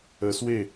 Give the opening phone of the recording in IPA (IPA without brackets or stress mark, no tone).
ə